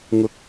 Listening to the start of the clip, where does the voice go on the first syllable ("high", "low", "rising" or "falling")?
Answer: low